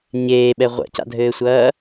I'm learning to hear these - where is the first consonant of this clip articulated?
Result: palate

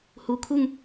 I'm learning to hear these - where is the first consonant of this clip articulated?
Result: throat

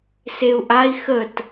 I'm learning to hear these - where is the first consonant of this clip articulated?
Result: tongue tip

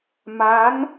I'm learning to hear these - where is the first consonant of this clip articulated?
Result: lips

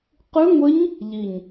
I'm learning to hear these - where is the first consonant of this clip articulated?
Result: uvula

